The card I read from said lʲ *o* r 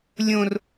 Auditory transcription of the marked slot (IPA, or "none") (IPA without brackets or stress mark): õ